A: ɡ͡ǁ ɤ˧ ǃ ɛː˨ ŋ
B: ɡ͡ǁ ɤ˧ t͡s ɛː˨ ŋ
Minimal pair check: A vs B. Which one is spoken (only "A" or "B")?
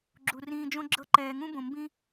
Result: A